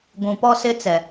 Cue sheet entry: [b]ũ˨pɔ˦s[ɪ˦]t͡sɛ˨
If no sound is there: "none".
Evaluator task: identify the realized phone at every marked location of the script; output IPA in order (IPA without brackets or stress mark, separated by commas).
ɡʷ, ɪ˦